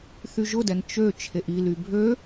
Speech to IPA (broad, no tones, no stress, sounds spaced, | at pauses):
θ y ʒ ʊ d ɛ n t͡ʃ ø t͡ʃʰ e ʔ i l y bʱ ø